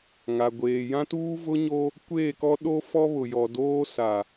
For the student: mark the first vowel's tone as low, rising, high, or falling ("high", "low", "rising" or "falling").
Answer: low